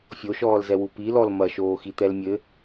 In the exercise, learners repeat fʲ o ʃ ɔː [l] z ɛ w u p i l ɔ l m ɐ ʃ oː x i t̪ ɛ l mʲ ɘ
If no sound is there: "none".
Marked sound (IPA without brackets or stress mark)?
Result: l